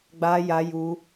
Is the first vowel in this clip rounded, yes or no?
no